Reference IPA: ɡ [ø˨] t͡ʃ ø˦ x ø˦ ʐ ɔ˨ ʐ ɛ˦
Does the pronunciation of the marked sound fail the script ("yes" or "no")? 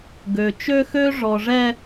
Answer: no